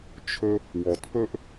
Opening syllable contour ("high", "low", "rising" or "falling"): high